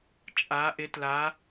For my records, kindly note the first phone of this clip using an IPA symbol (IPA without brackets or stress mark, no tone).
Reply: t͡ʃʼ